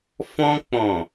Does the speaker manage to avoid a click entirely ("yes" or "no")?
yes